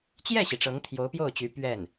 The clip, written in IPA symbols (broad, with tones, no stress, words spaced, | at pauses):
t͡ɕjɛ˥˩ɕi˩ ʈ͡ʂɤ˧˥ŋt̪ʰjo˧˥ʊ̯pjo˥˩ʊ̯t͡ɕy˧˥ pɥɛ˥˩n